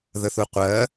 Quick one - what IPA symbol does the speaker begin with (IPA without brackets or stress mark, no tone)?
ð